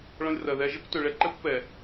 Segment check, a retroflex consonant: present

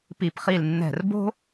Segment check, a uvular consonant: present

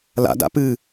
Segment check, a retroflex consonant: absent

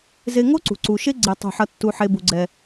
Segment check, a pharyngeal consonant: present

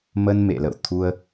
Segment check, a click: absent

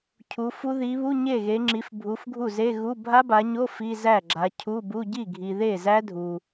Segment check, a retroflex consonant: absent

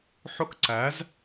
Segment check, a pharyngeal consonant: present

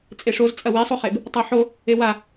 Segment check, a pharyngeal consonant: present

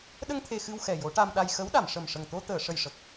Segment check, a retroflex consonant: present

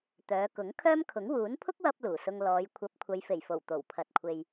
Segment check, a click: absent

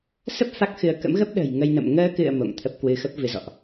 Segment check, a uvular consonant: absent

